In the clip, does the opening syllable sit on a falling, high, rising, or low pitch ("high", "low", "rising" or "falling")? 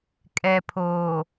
low